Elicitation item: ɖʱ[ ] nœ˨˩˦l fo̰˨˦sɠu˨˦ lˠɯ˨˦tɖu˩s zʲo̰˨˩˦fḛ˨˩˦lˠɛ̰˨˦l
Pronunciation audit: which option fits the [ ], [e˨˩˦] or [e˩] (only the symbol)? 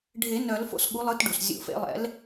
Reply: e˨˩˦